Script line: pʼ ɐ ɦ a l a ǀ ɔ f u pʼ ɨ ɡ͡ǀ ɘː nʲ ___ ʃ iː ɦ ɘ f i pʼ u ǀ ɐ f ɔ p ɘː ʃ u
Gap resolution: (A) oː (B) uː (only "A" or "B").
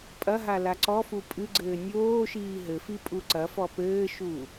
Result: A